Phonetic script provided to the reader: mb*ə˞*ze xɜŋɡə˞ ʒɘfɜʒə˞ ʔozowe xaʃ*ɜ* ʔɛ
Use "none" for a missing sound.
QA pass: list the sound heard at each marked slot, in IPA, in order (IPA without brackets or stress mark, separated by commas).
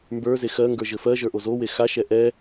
ə˞, ɛ